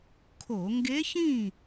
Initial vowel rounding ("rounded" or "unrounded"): rounded